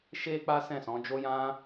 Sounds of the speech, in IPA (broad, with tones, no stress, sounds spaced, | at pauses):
ʃ e˦ k͡p a˦ s ɛ̃˦˨ s ɔ̃˨˦ d͡ʒ o˦ j ã˦